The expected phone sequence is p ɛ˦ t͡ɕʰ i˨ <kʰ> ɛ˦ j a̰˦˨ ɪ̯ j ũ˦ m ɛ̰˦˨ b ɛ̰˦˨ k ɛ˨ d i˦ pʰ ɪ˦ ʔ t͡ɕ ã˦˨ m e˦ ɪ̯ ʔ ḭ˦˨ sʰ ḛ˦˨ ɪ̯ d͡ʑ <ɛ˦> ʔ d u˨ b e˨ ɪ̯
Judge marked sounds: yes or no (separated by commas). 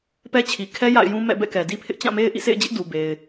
yes, no